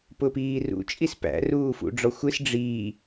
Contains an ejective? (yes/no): yes